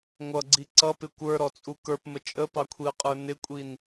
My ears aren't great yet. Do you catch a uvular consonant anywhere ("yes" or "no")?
yes